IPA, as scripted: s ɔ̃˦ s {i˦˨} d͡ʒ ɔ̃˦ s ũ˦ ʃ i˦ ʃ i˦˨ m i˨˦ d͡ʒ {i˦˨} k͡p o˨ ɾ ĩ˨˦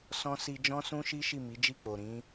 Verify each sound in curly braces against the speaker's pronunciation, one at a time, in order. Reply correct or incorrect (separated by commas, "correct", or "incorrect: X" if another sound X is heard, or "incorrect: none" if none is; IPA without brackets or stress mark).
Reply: incorrect: i˧, correct